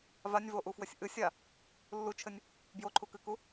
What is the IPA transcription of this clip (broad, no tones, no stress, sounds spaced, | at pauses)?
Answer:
v a nʲ v o ʔ u f w ɘ sʲ ʔ ɨ sʲ a | lː u t͡ʃʰ ɘ nʲ | b j o ǃʰ u k ɨ k u